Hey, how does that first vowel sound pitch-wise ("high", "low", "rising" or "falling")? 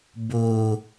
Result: high